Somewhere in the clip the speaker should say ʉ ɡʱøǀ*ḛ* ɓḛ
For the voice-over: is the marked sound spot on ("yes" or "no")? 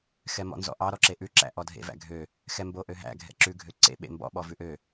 yes